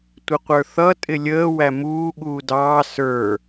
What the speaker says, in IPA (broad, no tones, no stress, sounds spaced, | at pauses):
tʷ ɪ qʷ ə˞ θ ʌ tʼ ɪ lʲ əː w æ m uː ɠ uː d ɑː s ə˞